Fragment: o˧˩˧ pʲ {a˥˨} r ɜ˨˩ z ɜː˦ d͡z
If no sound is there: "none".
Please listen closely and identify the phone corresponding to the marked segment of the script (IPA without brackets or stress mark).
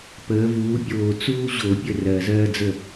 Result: ə˥˨